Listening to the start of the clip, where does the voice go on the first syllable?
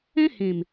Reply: high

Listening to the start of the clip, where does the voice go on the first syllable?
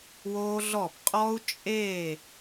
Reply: high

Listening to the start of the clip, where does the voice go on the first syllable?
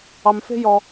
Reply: low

